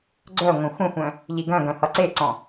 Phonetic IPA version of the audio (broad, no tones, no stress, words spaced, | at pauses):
ɡ͡ǀœ ŋʷœ̃xʷə̃xʷœ̃ | ʎiɡœ̃ɡœ̃ hʌǀeǀɔ̃